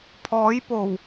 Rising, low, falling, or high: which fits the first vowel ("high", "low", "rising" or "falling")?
rising